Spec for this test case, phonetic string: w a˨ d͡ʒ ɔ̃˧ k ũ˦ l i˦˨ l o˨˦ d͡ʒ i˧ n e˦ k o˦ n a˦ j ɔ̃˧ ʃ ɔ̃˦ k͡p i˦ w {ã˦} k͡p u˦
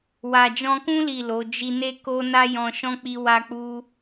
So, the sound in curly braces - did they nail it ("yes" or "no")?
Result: no